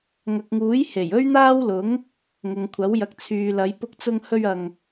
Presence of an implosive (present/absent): absent